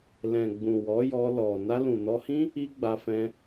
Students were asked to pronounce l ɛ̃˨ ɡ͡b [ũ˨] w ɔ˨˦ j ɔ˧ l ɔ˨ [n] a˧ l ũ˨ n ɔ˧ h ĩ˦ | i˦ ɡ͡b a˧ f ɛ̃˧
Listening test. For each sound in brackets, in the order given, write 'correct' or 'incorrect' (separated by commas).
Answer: correct, correct